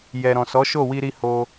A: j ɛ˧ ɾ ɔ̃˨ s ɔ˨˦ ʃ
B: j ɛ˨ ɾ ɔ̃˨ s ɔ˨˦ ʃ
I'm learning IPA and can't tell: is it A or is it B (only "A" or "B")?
B